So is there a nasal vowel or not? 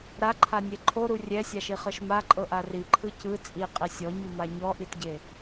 no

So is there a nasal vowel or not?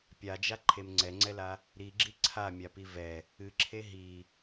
no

